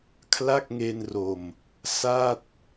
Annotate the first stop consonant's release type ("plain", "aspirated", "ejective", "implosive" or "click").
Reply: aspirated